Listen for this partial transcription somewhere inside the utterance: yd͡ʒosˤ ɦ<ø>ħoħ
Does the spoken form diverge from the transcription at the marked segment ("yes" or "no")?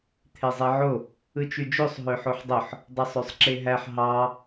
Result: no